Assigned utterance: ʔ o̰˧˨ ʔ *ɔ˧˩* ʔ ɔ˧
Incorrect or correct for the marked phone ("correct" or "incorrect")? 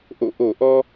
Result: incorrect